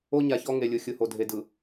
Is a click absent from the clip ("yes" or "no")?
yes